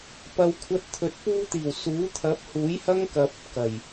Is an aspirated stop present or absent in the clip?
present